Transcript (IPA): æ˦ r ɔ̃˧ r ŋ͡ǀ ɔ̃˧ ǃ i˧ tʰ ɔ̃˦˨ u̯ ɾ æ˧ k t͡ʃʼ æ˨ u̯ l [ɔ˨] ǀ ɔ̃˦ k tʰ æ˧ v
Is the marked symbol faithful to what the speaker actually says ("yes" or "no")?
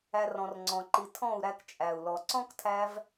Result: yes